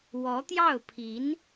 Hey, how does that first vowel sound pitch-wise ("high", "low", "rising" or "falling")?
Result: rising